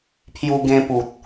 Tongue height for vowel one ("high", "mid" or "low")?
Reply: high